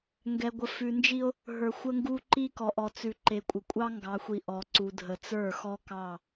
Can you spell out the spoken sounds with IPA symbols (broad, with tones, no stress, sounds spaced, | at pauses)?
ŋ ɡ ɛ˨ ɡʷ ə˨ f ʉ˨ n d͡ʒ i˦ o̯ | ɦ ə˞˨ xʷ ə˦ ŋ ɡ u˦ ǃ i˦ k ɔ˨ ʔ ɔ˨ t͡s ʉ˨ ǃ e˨ kʷʼ ə˨ kʷʼ ɑ˦ ŋ ɡ ɑ˨ xʷ i˨ ʔ ɔ˨ ǀ u˨ dʱ ə˨ t͡s ə˞˦˨ x ɔ˦ k ɑ˦˨